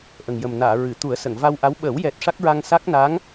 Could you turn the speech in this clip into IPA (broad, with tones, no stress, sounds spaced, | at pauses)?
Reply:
ʔ ə˨˩ ŋ j ə˨˩ m n aː˨˩˨ ɹ ɨ˨˩˨ t̪ u˨˩˦ ə̯ s ə˨˩˨ ŋ v a˧ w ʔ a˧˥ w ɓ əː˨˩˦ w j ɛ˨˩ t̚ ʂ a˦˥ k̚ ɹ a˧ ŋ s a˦˥ k̚ n a˧˥ ŋ